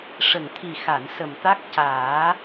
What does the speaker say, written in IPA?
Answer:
ʂ ə˨˩ ŋ t̪ʰ i˨˩ x a˨˩˨ n s ə˨˩ m t̪ a˦˥ k̚ c aː˨˩˦

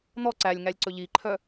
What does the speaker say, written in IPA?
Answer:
n̪ ɔ ǀ æ lʲ ŋ æ lʲ ǀ ɵ ʎ i ǃʰ œ

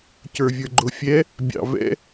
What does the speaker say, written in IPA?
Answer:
c ə˞ vʲ ə˞ ɡ͡ǃ ʊ fʲ ɛ | bʲ ɑ̰ v ɛ̰

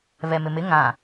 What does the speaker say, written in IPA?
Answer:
β ɛ m ɪ m ɪ ŋ ã

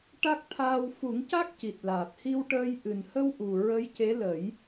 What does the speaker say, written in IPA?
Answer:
ʈ a˦˥ k̚ t̪ʰ aː˧ w f u˨˩˦ ŋ c a˦˥ k̚ c i˨˩ t̚ l aː˨˩ p̚ h i˧ w ʈ əː˧ j ʔ ɨ˨˩ n h ə˧ w ʔ u˨˩ ɹ ə˧˥ j c e˧˥ l ə˨˩˦ j

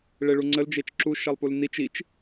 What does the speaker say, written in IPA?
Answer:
ɭ e ɭ u ŋ͡ǀ ə l d͡ʒ e t͡ʃ ǁ u ʃ ɛ lˠ p u l n i t͡ʃ i t͡ʃ

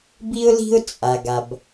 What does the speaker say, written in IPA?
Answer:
b i˥ ʊ̯ l i̤˥ ʊ̯ t͡sʼ a˩ ɡ a˩ b

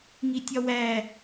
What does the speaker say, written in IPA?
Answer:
ŋ i tʲ ɒ w æ

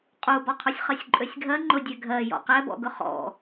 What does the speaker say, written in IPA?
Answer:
qʼ u b ɔ qʰ u sʲ χ ɜ sʲ ǃʼ ø sʲ ɡʱ ɜ ŋ͡ǃ ʊ dʲ ɛ ɡʱ ɜ j ɔ̰ q ɛ b ɔ̰ ɡ ʊ χ ɔ̰

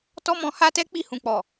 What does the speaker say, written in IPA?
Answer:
t ɔ˦ m ɔ̃˧ h a˦ t ɛ˦ k͡p i˦˨ h ũ˨ k͡p ɔ˨

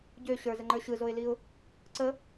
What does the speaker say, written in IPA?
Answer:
ɟ ø ɕ ə˞ z ə ŋ͡ǃ ə˞ ɕ ɯ z o ɪ̯ l i ʊ̯ | ǀ ə

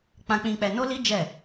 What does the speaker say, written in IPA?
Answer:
k͡p ã˧ k͡p ĩ˧ k͡p ɛ˧ n o˦ l i˦ d͡ʒ ɛ˦˨

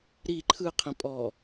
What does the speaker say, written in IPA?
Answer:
ɾ i ǃʰ ɯ qʰ ĩ pʼ ɔ

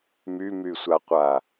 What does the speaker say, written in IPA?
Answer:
m y m y sʷ a qʷ a

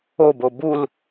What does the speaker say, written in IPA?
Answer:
o b o b u l

